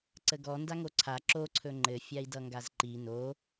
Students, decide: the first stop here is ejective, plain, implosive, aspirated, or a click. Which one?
click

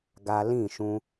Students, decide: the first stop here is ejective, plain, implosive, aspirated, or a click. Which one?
plain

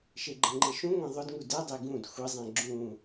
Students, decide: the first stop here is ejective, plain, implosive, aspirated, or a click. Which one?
click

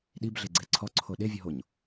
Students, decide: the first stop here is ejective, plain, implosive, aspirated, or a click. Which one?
implosive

